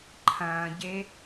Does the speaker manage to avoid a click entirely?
no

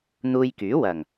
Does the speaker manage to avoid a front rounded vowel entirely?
no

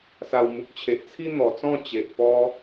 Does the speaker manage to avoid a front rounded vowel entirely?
yes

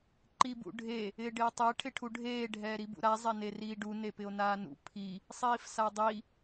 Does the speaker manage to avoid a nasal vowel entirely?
yes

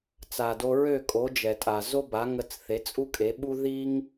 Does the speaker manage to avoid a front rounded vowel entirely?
no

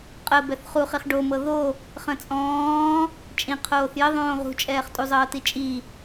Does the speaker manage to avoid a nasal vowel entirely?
no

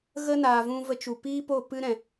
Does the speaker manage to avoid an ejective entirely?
yes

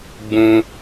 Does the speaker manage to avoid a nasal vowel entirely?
no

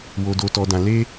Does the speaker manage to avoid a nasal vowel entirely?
no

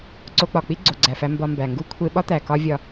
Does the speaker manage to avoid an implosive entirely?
no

